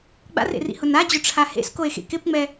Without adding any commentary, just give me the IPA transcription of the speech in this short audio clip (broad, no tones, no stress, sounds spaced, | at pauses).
ɡ͡b a̰ r ḛ r ḭ h ʊ n a d͡ʑ ʊ ʈ͡ʂʰ a h ḛ s k o e̯ x ḛ k ɪ p ŋ͡m ɛ